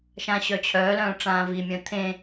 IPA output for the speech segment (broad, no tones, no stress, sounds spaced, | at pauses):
ʃ ã ɕ œ t͡ɕʰ œː l œ̃ː ʈ͡ʂ ãː v i mʲ œ̃ t̪ʰ ẽ